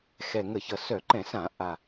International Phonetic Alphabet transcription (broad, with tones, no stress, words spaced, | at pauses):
xɛ˨˩ŋə˧˩˧çʌ˨˩ sœ˧˩˧ǃɛ̃˧˩˧sã˧˩˧ ʔa˨˩